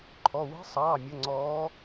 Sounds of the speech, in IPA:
ǃʰ ɔ˩˧˩ w e̤˧˥ sˤ ɑː˩˧˩ mʲ ə˩˧˩ ŋ͡ǀ ɔː˧˥

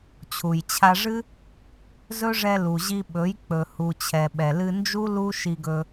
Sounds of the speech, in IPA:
t͡ɕʰ u˨ j t͡ɕʰ a˧ ʐ ɨ˦ | z ɵ˦ ʐ ɛ˧ l u˨ ʑ i˧ ɓ ɵ˨˦ j k͡p ɵ˨ h u˨ t͡ɕʰ ɛ˨ ɓ ɛ˨ l ɨ˧ n d͡ʒ u˦ l u˦ ʃ i˧ ɡ ɵ˧

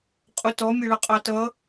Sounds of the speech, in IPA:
qʼ ʊ t ɔ mʲ ʌ ɭ ʌ qʼ ɑ t ʌ

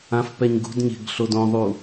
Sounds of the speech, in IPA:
ã f p ɛ ɲ ɡ ṳ d ɲ e̤ ɡ ɬ o d õ ðˤ u

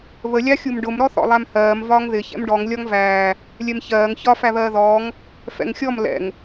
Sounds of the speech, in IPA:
β ə lʲ ɑ xʲ u m ɖ ʊ m ɾ ɔ θ ɔ̰ lˠ æ m h ɜː m v ɒː ŋ ð ɪ ç ɛ̰ m ɖ ɔ ŋ lʲ ɒ ŋ v æː | lʲ ɛ m ç ɜː ŋ ç ɒ f æ β ɜː ð ɔː ŋ | f ɛ̰ ŋ xʲ ɔ m l ɛ̰ ŋ

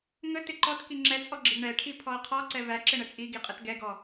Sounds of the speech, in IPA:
ŋ ə t ɪ ǃ ɔ t k i ŋ͡ǁ ɛ t͡sʼ ɔ ɡ͡ǁ ɪ ɡ ɳ ɛ ʈʰ i pʰ ɔ ɐ̯ qʰ ɔ ǀ ɛ v æ ǁ ɪ ɳ ə t͡sʼ i ɡ i qʼ ə t ɡ ɛ ɡ ɔ

